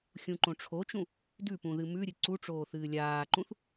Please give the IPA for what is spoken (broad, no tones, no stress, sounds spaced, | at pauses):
xʲ ũ ǃ õ ʈ͡ʂʰ o t͡ʃ ũ | d ʉ p ũ ð ɨ m ʉ ɾʲ ɨ ǀ u ʈ͡ʂ oː θ ɨː lʲ aː ǃ ũ θ